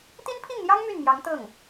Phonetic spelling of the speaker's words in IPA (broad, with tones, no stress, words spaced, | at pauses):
t̪i˥npʰi˥˩ŋn̪jɑ˥ŋ my˥˩nmjɑ˧˥ŋ t̪ɤ˥˩ŋ